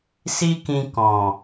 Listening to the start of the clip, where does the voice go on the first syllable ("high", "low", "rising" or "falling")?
high